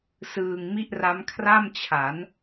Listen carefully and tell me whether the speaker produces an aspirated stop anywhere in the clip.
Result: yes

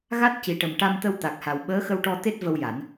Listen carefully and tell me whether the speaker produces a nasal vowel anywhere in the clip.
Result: no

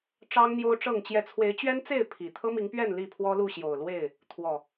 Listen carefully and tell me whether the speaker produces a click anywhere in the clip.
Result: no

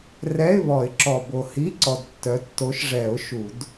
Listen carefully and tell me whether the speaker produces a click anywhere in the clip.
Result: yes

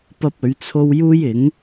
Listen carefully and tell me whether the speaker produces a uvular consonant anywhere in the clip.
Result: no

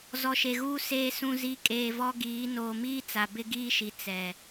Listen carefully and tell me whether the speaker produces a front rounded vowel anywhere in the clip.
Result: no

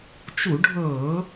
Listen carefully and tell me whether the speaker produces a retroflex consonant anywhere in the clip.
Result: yes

